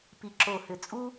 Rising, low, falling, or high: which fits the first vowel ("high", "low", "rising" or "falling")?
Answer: low